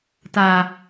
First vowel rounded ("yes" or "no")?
no